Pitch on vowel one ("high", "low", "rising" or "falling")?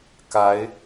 rising